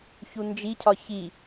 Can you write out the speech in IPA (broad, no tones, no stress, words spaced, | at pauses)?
çund͡ʒicʰɒ çi